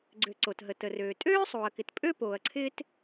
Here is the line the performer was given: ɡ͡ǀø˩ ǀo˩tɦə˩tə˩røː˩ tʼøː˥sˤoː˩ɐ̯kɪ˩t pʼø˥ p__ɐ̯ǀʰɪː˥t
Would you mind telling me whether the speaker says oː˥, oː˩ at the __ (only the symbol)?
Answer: oː˩